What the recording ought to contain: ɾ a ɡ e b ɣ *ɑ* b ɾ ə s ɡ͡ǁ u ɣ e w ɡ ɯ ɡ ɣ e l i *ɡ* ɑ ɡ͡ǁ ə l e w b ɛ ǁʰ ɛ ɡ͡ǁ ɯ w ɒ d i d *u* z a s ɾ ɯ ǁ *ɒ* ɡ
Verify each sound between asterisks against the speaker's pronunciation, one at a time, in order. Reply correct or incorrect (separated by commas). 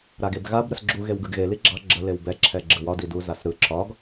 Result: incorrect, incorrect, correct, correct